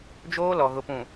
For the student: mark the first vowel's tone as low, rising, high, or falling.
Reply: high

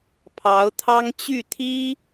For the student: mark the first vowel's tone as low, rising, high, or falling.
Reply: rising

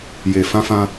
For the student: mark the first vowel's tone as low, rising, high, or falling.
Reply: low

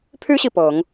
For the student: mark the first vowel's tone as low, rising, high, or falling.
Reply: high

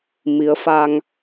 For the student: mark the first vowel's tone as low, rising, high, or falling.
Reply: rising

